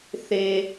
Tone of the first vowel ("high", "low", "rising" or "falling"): high